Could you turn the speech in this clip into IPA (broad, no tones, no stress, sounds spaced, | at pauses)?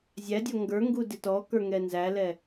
zʲ æ dʲ ɔ ŋ ɡ ə˞ ŋ ɡ u d ɪ t ɔ k ə˞ ŋ ɛ n z æ l ɛ